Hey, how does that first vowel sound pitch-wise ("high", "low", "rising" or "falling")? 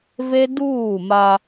high